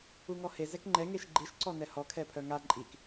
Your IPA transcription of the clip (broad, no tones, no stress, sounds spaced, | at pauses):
u ŋ ɔ h e z ɛ k ŋ͡ǃ ɛ ŋ e ʃ ɡ͡ǃ i ʃ ǀ ɔ n ɛ h ɔ kʰ ɛ pʰ œ ŋ a ǃʼ i k